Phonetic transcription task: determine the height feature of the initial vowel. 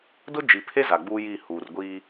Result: high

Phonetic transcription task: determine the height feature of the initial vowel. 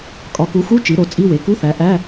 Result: low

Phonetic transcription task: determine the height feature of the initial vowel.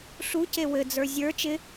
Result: high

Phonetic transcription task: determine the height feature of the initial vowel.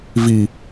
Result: high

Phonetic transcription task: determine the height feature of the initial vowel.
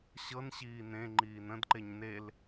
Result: mid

